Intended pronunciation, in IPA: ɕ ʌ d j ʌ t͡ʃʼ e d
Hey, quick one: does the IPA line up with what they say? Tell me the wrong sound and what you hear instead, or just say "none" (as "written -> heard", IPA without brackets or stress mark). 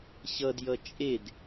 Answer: none